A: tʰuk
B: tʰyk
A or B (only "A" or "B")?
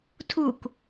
A